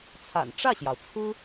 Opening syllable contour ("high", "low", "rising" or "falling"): low